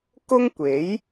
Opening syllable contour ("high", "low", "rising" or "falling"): high